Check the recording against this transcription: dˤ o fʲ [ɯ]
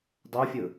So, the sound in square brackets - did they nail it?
yes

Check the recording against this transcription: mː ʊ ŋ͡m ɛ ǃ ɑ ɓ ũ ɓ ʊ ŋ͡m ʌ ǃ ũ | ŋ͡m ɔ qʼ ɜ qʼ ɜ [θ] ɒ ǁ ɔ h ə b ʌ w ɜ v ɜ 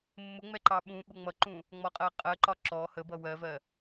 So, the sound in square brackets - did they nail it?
no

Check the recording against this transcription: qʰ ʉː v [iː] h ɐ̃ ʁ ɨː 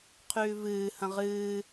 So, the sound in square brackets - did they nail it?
no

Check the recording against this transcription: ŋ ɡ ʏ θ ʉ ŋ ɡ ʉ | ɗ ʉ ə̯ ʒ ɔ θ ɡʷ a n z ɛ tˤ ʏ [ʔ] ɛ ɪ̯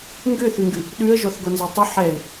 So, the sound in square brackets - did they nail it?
no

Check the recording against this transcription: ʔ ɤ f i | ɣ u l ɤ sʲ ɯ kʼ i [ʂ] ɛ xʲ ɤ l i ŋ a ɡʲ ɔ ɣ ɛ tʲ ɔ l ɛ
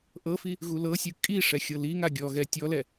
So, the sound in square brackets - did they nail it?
yes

